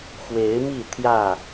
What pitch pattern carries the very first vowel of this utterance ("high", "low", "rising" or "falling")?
rising